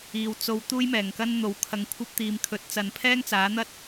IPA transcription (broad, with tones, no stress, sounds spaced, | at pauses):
iː˨ w t͡s o˧ w t̪ uː˥ j m ɛː˨˩ ŋ k ɐ˥ n n̪ o˨˧ w kʰ ɐ˧ ŋ kʷʰ ɐ˥ p̚ t̪ iː˨ m kʰ ɵ˨˥ t̚ t͡s ɐ˨ n pʰ ɛː˥ ŋ t͡s aː˨˥ n̪ ɐ˥ t̚